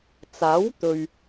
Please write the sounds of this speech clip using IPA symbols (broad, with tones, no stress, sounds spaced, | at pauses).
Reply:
t͡s aː˨˥ w t̪ ɵ˨ ɥ